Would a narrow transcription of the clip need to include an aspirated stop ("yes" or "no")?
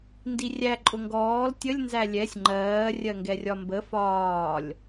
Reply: no